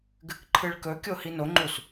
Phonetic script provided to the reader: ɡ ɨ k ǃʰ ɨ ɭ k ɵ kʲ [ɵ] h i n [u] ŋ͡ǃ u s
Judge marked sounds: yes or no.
no, no

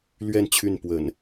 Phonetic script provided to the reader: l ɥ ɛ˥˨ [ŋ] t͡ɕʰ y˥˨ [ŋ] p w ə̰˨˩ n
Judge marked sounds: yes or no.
no, no

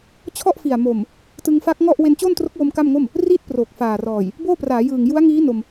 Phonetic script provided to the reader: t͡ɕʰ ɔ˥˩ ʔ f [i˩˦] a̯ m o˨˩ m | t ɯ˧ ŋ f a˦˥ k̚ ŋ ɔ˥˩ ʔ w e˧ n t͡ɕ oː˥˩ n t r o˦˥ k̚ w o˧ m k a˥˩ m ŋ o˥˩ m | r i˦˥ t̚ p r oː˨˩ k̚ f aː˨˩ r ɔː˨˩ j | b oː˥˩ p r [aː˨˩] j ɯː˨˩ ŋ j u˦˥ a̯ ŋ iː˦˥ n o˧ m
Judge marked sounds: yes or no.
no, no

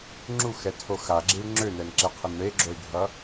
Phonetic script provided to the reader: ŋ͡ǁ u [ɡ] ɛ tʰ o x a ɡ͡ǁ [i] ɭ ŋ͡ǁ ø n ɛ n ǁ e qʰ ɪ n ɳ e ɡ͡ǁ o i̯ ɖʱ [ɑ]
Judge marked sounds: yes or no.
no, yes, no

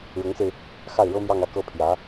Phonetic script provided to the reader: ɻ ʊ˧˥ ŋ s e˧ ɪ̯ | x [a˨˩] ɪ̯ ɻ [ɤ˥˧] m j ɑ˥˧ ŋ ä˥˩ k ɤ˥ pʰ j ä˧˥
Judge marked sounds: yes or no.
no, no

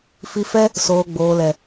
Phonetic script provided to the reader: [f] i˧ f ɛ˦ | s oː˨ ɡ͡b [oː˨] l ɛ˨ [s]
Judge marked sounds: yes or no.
yes, yes, no

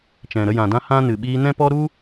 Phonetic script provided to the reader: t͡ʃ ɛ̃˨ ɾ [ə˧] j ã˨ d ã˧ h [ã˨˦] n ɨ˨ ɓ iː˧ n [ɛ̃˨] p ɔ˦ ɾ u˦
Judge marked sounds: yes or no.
yes, no, no

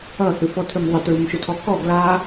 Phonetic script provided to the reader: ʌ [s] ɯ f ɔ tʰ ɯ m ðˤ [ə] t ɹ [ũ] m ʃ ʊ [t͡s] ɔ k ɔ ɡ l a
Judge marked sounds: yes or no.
no, yes, no, no

